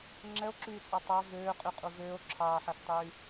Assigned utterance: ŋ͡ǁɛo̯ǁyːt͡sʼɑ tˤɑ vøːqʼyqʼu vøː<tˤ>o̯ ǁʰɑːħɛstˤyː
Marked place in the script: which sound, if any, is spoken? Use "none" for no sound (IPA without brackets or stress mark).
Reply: none